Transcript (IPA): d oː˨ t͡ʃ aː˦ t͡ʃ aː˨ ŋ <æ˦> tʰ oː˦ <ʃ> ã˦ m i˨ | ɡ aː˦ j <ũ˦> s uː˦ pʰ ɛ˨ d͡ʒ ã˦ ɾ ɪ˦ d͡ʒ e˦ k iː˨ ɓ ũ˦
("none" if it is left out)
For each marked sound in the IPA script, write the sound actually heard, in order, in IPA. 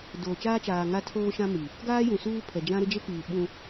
a˦, ʃ, ũ˨

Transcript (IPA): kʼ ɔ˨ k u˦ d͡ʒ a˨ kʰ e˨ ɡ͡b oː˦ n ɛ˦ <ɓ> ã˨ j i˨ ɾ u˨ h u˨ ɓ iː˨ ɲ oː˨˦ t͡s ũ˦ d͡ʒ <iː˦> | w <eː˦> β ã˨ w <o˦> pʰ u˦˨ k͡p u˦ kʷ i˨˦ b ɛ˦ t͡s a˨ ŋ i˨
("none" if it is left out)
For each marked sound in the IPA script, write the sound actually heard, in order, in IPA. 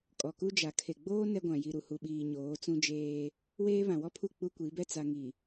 ɡʷ, eː˦, eː˦, ɔ˦

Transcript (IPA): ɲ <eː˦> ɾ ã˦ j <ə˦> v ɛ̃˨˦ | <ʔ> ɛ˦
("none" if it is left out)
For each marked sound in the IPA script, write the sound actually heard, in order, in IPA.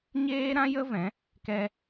eː˦, ə˦, k

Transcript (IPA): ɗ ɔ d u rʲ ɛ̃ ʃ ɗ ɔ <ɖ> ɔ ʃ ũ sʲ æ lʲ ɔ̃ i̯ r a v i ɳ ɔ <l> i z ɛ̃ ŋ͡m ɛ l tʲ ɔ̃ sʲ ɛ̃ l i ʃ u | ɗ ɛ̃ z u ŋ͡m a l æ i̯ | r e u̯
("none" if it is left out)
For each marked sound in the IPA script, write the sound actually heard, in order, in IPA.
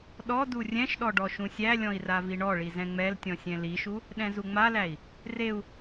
ɖ, ɭ

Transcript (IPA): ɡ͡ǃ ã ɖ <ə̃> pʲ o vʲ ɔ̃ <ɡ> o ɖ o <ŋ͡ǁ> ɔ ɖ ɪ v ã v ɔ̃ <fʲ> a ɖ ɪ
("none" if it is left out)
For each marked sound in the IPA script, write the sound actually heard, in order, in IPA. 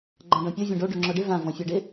ɔ̃, ɖ, ŋ͡ǁ, fʲ

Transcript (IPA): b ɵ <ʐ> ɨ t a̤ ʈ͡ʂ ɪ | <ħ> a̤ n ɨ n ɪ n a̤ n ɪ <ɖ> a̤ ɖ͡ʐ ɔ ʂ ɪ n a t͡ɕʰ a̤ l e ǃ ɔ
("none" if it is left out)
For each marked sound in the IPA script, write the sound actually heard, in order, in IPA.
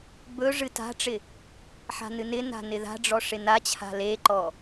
ʐ, ħ, ð

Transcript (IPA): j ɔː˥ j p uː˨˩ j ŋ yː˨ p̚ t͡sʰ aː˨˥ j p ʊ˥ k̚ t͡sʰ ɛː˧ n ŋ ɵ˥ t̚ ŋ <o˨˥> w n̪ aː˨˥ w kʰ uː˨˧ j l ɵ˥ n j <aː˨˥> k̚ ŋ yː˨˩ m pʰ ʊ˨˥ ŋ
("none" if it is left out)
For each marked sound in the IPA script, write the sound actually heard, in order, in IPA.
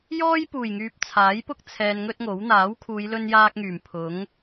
o˨˥, aː˥

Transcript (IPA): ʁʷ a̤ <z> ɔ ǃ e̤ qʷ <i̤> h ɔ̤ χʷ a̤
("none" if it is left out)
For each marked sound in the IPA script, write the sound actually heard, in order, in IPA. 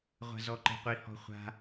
z, i

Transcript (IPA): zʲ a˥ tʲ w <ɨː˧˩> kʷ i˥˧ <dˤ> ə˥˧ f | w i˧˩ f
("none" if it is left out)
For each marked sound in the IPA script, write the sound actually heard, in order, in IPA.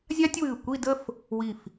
ɨː˧˩, d

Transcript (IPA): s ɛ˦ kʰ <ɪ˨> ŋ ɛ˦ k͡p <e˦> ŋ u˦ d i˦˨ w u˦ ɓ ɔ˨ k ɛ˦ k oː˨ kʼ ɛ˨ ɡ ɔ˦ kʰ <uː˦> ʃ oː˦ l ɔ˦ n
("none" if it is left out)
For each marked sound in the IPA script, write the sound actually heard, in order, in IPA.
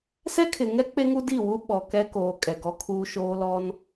ɪ˨, e˦, uː˦

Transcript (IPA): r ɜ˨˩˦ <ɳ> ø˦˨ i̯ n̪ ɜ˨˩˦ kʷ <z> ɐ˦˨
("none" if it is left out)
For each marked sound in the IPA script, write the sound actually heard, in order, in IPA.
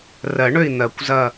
ɳ, z

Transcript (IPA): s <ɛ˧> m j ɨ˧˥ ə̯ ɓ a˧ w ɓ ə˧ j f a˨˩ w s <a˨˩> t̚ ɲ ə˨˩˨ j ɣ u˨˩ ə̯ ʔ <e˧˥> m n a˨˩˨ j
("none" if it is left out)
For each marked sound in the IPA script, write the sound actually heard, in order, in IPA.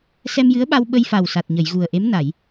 ɛ˧, a˨˩, e˧˥

